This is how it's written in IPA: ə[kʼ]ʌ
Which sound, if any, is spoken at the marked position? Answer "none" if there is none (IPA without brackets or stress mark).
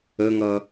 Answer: ŋ